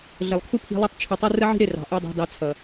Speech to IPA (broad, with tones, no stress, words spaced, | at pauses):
ɮə˨lˠkʰu˦pʰi̤˧lˠʌ˦tˤ t͡ʃʰə˧tˤu˦ rə˦ʕi̤˦ɾɪ˦˨ rɑ̤˨ʔu˧ dˤɑ̤˧dɑ˧t͡sʰʌ˨